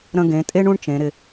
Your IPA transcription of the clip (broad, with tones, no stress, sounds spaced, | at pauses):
ɾ ə̃˧ ɡ ẽ˩˧ tʼ e˥ ɳ ũ˥ ɳ t͡ʃ ẽ˩˧ ɾ ɪ˧